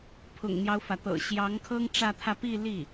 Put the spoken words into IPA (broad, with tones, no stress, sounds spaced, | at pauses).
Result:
pʰ ʊ̰˨˩ ŋ n̪ j ɑ˦ ʊ̯ f ä˩ t̪ ɤ̰˨˩ ɕ j ɑ˧˥ ŋ kʰ ɤ˥ ŋ ʈ͡ʂ ä˥˧ t̪ʰ ä˥˧ p i˥˧ l i˥˩